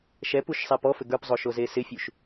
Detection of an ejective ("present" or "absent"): absent